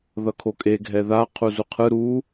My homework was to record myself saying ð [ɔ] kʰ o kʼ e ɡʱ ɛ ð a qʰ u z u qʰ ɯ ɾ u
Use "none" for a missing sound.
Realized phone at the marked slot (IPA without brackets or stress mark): ʌ